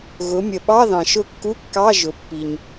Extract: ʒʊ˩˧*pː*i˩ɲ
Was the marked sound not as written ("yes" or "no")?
no